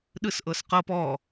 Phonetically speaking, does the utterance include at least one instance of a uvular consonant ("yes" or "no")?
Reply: yes